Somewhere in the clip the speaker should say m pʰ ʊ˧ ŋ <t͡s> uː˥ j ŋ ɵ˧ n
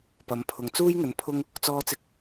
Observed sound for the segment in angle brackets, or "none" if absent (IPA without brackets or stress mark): t͡s